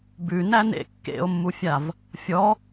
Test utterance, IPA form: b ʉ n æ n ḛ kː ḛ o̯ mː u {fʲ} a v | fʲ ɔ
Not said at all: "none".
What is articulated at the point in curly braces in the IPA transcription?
fʲ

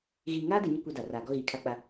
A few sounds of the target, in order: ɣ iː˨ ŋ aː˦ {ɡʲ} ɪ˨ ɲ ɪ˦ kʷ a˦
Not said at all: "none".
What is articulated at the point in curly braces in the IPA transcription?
d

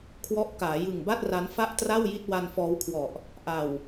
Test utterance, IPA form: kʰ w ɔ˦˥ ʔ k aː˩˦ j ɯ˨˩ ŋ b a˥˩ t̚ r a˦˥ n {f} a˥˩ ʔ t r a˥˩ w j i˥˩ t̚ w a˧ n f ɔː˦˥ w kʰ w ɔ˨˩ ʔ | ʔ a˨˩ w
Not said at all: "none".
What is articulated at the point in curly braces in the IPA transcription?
f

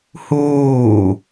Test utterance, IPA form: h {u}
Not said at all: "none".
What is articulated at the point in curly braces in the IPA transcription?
uː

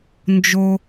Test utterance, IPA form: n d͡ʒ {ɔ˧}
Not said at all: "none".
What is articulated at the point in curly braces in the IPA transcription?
o˧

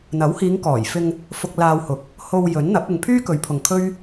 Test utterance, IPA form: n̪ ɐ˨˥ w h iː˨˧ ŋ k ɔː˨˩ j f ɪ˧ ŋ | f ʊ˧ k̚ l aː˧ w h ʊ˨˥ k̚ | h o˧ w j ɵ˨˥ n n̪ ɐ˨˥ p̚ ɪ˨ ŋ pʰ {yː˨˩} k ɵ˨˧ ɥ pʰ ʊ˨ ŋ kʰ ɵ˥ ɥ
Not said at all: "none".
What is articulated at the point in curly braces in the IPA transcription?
yː˥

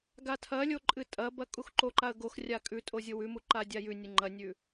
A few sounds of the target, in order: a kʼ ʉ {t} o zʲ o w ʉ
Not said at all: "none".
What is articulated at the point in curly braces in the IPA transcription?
tʼ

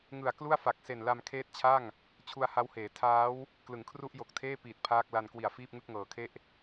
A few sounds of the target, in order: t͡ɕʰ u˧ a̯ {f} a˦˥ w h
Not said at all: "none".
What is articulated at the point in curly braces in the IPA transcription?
h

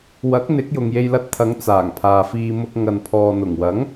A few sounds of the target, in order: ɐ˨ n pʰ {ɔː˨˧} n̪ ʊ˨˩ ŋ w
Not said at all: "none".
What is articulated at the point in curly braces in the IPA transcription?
ɔː˨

